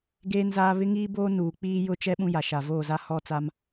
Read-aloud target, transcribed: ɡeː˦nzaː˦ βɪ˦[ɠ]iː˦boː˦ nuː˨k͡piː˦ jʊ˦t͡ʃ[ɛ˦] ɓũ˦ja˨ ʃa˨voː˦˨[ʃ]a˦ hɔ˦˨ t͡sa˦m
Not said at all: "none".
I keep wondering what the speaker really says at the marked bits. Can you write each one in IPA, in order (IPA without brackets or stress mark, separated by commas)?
ŋ, ɛ˦, z